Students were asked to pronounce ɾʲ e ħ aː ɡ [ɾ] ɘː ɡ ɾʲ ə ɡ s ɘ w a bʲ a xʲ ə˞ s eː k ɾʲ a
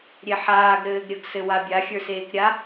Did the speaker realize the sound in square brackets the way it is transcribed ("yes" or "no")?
yes